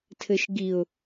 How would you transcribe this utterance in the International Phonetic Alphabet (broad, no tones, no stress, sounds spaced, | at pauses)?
tʰ ɘ ʃ ɡ i ʊ̯